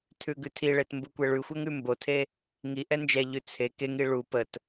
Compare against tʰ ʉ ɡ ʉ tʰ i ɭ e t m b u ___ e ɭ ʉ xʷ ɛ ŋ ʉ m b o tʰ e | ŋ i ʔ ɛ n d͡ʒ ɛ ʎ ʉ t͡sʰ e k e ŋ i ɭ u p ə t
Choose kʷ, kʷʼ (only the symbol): kʷ